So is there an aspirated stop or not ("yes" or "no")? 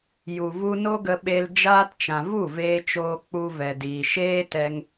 no